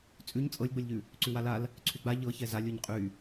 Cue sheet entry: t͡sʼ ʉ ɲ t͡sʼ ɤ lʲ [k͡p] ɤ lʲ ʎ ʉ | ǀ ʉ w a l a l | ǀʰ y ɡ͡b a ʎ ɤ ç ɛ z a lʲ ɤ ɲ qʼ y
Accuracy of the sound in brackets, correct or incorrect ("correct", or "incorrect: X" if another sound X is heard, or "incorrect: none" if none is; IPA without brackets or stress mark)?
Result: incorrect: ɡ͡b